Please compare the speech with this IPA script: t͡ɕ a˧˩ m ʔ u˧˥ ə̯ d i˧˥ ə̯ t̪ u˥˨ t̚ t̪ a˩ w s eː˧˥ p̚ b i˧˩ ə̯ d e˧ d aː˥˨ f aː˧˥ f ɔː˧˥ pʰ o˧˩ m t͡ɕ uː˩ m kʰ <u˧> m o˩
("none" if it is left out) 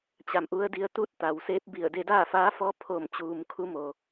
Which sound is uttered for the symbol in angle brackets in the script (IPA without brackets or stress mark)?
u˧˥